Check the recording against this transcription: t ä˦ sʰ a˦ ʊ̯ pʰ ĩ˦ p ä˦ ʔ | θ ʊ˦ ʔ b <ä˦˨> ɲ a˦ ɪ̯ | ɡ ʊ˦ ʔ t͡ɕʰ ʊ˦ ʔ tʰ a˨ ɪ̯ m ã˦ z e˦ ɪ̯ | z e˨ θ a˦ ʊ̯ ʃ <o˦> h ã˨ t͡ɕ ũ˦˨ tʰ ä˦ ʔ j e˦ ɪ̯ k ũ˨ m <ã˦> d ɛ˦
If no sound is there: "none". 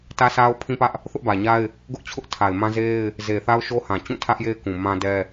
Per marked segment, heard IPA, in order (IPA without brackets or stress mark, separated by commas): ä˨, o˦, ã˦